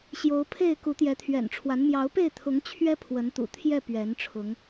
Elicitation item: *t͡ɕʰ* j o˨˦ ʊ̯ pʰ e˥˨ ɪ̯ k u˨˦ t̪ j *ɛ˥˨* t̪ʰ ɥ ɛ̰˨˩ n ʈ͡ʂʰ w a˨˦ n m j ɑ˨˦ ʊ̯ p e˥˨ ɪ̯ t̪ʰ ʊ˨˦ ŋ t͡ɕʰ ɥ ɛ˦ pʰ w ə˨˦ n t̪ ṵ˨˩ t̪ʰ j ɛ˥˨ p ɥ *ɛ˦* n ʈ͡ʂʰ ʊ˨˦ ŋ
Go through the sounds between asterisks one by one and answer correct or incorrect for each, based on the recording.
incorrect: ɕ, incorrect: ɛ˨˦, incorrect: ɛ˨˦

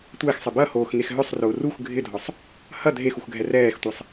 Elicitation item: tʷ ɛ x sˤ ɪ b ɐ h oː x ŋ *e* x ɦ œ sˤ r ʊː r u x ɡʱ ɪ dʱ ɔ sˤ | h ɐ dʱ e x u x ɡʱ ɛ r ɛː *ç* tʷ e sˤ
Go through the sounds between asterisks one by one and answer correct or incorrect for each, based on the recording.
correct, incorrect: x

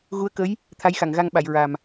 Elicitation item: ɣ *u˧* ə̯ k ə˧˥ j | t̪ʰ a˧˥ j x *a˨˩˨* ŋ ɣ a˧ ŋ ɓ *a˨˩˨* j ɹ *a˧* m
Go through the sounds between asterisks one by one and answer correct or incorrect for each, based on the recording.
incorrect: u˧˥, correct, correct, incorrect: a˨˩

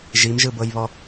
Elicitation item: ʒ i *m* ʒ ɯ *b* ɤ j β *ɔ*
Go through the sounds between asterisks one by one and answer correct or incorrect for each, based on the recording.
correct, correct, correct

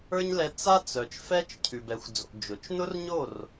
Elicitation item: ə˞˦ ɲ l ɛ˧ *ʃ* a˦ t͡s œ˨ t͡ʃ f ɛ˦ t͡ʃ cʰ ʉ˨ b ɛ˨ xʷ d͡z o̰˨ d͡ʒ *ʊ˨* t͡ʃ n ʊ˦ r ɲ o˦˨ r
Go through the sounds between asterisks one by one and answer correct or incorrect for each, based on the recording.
incorrect: t͡s, correct

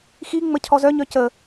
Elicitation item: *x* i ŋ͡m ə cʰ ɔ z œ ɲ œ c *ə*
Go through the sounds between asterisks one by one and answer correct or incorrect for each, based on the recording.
correct, correct

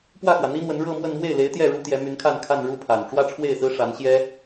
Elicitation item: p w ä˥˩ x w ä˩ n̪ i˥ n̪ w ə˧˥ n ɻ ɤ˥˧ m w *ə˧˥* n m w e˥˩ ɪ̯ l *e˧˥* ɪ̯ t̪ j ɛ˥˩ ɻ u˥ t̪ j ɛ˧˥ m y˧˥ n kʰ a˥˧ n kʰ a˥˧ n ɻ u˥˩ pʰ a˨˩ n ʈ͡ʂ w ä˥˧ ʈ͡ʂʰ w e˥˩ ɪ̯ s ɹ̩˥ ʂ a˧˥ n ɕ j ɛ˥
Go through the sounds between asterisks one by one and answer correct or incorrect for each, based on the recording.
incorrect: ə˥˧, correct

